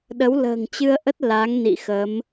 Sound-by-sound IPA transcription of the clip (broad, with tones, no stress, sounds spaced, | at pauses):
ɗ ə˨˦ w l ə̤ː˨˩ ŋ t͡ɕ ɨ˧ ə̯ ʔ ə˦˥ t̚ l a˨˦ ŋ n ḭ˧˨ x ə˨˦ m